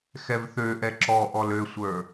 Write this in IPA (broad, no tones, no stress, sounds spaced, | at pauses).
x ɛ v θ ø ʔ ɛ ǁ ɔ ʔ ɔ l ø sʷ ə˞